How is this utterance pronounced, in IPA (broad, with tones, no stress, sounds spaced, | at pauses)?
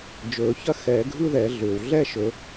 d͡ʒ ɵː˨˩˦ ç ɐ˥ x ɛː˨˩˦ ɡʱ ɯ˥ ð ɛ˨˩˦ ɮ ʏː˩ w ɮ ɛ˥˧ ʃ ɵ˨˩˦